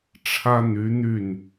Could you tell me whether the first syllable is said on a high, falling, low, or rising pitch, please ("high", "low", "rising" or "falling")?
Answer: high